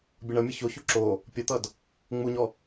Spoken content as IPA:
bʲ ʌ ɳ ʌ mʲ ʌ ç o ç u ǁ o | pʲ ʌ t̪ ʌ d | ŋ͡m u ɲ ɔ

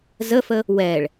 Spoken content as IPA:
z ə f ə | w ɛ ɭ

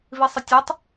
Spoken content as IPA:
v i sˤ ɪ tʲ ɛ tˤ

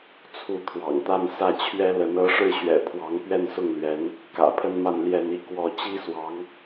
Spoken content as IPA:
t͡sʰ u˧˥ t̪ʰ w ɑ̰˨˩ ŋ t̪ a˥˧ n s ä˥˩ t͡ɕʰ ɥ ɛ˥ l ə˧˥ n ɤ˧˥ ʂ ɻ̩˥˩ ɕ ɥ ɛ̰˨˩ pʰ w ɑ˧˥ ŋ p ɥ ɛ˥˧ n s ʊ˥˩ ŋ l ɥ ɛ˧˥ n | k ä̰˨˩ pʰ ə˥ n m a˥˧ n l j ɛ˥˧ n i˥˧ k w ɔ˥˩ t͡ɕ i˥ s w ɑ˧˥ ŋ

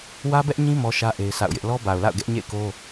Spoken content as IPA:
w ä˦ b ɛ˦ ʔ ɲ ĩ˦ m ɔ˦ ʃ ä˦ ʔ e˦ ɪ̯ sʰ a̰˦˨ ʊ̯ j ɪ˦ ʔ l ɔ˦ b a˨ ʊ̯ l a̰˦˨ ʊ̯ ɡ ɛ˦ ʔ ɲ ḛ˦˨ ɪ̯ k o˦

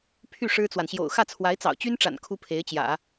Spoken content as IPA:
pʰ y˥˩ ʂ ɻ̩˥ t͡s w a˨ n ɕ j o̰˨˩ ʊ̯ x ä˥˩ t͡sʰ w a˧˥ ɪ̯ t͡s ɑ̰˨˩ ʊ̯ t͡ɕ y˥ n ʈ͡ʂ a̰˨˩ n kʰ u˥ pʰ e˧˥ ɪ̯ t͡ɕ j ä̰˨˩˦

